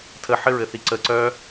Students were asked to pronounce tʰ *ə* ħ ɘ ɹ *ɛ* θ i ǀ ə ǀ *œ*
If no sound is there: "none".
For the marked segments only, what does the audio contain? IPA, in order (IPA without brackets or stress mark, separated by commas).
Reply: ə, ɘ, œ